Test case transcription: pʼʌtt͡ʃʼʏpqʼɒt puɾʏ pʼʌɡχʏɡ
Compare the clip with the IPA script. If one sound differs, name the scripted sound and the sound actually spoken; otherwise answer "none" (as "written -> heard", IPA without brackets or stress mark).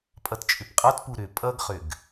none